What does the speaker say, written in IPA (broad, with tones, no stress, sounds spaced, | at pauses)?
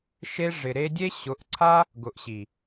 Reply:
ʃ e˧ ʐ ɪ˨ ɾ e˧ dʲ e˦ ɕ ʊ˨˦ ʔ ǀʰ a˦ | ɡ ʊ˨ ʔ ɕ i˨